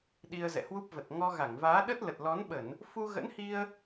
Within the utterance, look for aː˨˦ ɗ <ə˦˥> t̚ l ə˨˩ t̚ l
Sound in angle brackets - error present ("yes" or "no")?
no